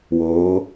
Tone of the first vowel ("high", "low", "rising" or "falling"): rising